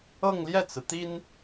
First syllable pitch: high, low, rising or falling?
falling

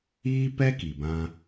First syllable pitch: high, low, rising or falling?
high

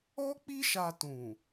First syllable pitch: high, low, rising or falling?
high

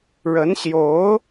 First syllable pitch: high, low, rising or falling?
rising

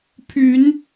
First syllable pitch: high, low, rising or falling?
rising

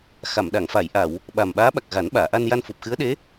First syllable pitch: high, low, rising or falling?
low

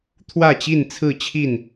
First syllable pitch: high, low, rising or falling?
falling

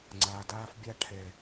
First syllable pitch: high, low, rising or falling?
low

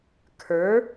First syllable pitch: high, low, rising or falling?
rising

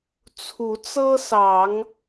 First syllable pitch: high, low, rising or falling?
rising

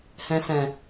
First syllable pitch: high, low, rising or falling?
low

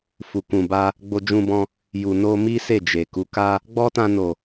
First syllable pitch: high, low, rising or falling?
low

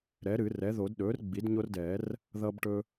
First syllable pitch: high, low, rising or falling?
rising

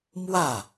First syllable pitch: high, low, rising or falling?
falling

